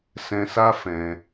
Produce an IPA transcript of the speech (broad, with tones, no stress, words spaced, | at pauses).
sɛ̃˧sa˦fɛ̃˧